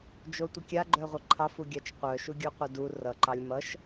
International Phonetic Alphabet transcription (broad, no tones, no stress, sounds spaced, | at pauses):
d͡ʒ o tʷ ə kʲ a ɡ͡ǃ œ ʁʷ ʌ ǃʰ ɑ f u ɡʲ ɑ t͡ʃ qʷ œ ʃ u ɡʲ u qʷ ə d u r ʌ ǃ ɑ lʲ m ʌ ʃ